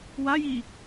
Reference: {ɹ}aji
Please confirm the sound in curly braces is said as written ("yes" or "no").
no